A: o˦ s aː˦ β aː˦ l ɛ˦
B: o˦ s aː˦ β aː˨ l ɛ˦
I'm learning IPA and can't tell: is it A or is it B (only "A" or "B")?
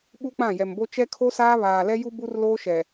B